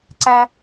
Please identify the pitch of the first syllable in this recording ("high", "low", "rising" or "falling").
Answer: high